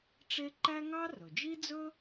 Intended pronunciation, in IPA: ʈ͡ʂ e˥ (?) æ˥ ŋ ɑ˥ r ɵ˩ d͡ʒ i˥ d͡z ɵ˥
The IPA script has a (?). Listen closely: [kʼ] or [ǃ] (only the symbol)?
ǃ